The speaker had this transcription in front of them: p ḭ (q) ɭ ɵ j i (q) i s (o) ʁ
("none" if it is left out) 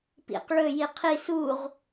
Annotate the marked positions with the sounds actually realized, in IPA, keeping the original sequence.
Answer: q, qʰ, u

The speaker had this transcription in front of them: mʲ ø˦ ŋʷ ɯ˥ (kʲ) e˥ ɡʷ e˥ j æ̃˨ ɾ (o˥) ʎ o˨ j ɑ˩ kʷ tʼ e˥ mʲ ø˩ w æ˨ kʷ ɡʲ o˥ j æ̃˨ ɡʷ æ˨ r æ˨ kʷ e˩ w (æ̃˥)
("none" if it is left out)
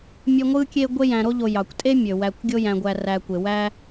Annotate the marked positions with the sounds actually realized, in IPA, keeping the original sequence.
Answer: kʲ, o˥, æ˥

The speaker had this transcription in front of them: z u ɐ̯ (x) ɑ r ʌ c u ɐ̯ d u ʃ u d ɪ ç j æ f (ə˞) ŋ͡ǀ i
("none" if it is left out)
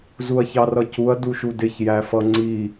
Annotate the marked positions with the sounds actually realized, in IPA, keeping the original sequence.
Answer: ç, ʌ

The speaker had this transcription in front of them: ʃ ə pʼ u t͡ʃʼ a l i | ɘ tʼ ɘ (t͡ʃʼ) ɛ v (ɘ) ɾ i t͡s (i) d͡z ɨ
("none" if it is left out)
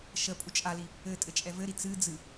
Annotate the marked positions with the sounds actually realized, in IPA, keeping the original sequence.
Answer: t͡ʃʼ, ɘ, ɨ

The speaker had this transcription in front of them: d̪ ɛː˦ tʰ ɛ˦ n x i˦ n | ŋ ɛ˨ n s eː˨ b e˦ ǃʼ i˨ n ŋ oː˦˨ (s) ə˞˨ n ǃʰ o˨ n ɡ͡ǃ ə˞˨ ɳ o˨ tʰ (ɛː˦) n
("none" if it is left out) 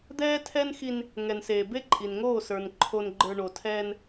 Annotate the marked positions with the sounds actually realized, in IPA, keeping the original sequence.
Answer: s, ɛː˦

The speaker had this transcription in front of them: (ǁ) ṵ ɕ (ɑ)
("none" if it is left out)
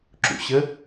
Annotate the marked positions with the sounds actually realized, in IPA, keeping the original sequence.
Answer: ǁ, ə

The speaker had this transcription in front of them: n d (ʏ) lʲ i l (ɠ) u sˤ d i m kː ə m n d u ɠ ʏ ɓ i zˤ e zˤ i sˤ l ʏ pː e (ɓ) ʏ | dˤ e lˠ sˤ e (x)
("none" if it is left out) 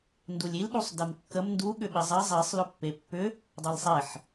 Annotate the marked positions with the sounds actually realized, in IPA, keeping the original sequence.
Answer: u, ɗ, pː, ħ

